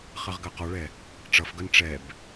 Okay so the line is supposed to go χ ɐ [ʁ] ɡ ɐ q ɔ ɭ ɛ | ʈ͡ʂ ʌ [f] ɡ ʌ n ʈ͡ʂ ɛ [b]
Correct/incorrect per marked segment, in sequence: correct, correct, correct

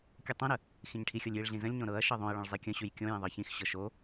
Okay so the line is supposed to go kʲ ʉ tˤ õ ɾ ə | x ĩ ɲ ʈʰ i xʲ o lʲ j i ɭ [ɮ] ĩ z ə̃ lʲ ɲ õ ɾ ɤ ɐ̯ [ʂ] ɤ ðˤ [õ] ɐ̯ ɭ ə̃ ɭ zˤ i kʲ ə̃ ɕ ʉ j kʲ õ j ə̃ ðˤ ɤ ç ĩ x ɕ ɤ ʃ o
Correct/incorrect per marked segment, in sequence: correct, incorrect: ʃ, correct

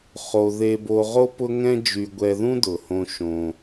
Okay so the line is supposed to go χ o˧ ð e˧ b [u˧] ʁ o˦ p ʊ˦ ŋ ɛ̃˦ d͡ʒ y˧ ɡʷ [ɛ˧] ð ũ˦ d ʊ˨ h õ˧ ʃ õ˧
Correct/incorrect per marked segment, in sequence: incorrect: o˧, correct

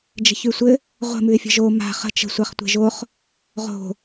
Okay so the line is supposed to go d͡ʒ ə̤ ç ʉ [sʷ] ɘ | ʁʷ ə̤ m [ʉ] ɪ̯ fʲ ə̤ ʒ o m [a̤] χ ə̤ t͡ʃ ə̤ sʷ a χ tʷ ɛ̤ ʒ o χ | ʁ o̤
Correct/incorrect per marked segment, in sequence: correct, correct, correct

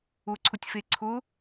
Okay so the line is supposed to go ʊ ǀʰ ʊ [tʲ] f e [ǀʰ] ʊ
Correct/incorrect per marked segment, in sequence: correct, correct

